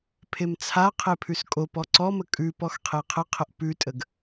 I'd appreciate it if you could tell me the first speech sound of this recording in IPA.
pʰ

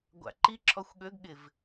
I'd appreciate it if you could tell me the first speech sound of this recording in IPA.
ɡʷ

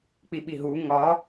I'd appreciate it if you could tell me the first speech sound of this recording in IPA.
k͡p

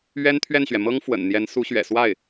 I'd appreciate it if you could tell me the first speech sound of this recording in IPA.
ɥ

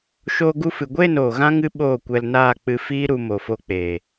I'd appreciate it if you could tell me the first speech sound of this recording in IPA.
ʃ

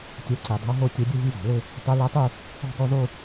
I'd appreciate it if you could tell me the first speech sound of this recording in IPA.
tʲ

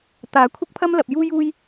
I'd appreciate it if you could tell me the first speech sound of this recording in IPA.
t̪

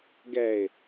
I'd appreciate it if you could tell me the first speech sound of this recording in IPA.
ɡ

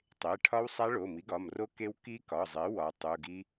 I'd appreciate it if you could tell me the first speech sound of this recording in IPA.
tˤ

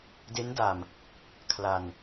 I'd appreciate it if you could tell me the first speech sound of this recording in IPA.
d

